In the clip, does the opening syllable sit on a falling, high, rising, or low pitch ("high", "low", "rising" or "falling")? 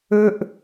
high